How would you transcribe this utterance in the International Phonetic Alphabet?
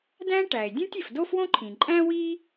dæ̃˥ʈæ˩e̯ dʲũ˦tʲe˩f do˥fwõ˥ǃʰĩ˩ ǃʼæ̃˥wi˥

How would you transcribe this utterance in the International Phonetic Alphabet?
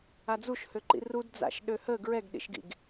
ad͡zuʃhøǃḭ rud d͡za̰ʃɗøhə ɡɹɛɡɗḭʃɡḭɡ

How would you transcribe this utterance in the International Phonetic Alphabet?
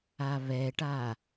aβɛʈa

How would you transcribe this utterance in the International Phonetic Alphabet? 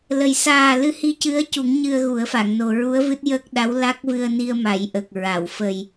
lə˨˩j saː˨˩ lɨ˧hi˧cɨ˧˥ə̯cu˨˩˦ŋ ɲɨ˧ə̯ɣu˨˩˦ə̯fa˨˩˨ŋno˨˩ ɹu˧˥ə̯vɨ˦˥t̚jəː˦˥k̚ɗa˧˥w la˦˥k̚vɨ˧ə̯ni˧ə̯ ma˨˩˦jʔə˨˩k̚ ɹa˨˩˨w fə˨˩j

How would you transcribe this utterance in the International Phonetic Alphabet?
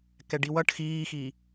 kɛɖiwʌʈ xiːxi

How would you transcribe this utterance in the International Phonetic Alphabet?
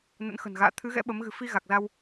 nə̰˧˥nxə̤˨˩nɣa̰ː˧˨ t̪ʰɨ˨˦ɣɛ̰˧˥ ɓə˨˦m ɣɨ̤˨˩fi˧ ɣa˨˩k̚za˧w

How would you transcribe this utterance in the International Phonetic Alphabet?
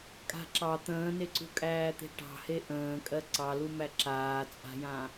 kʼa̤ǁɑ t̪ə̃ːneǀṳkʼæː t̪e̤ʈɑ̤he ʔə̃ːkʼɜ ǀɑlumæ ǁaːt͡sʼa̤jã

